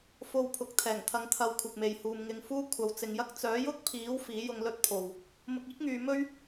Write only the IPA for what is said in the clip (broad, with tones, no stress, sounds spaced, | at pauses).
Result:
f o˧ w pʰ ʊ˨˥ k̚ t̪ʰ ɛː˨˩ ŋ t̪ʰ ɐ˧ ŋ t̪ʰ ɐ˧ w kʷʰ ɪ˨ k̚ m e˨ j h uː˧ m ŋ ɪ˧ ŋ f uː˥ kʷʰ ɐ˨˧ w t͡s ɪ˨˧ ŋ j ɐ˥ k̚ t͡s œː˨˥ j ʊ˥ k̚ pʰ iː˨˥ w f iː˨˥ j ʊ˧ ŋ l ɵ˥ t̚ pʰ o˨ w | m ʊ˧ k̚ iː˥ k̚ ŋ yː˨˧ m ɵ˥ ɥ